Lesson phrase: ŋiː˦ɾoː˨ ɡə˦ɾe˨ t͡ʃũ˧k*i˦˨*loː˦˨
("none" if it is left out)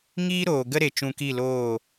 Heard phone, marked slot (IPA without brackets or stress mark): i˦˨